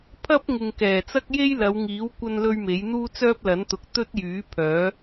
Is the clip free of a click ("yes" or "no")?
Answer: yes